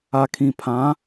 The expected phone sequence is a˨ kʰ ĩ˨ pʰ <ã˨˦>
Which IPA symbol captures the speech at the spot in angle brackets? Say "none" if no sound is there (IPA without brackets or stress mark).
ã˨˦